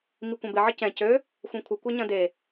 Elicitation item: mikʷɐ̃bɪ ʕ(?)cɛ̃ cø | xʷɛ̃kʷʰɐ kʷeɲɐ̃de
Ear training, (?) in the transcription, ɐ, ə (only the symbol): ə